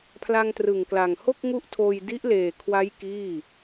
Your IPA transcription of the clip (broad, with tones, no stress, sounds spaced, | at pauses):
pʰ l a˧ ŋ t r ɯ˨˩ ŋ k l a˨˩ ŋ h o˥˩ k̚ ŋ u˦˥ ʔ tʰ oː˧ j d i˦˥ ʔ l eː˨˩ kʰ w a˦˥ j k iː˥˩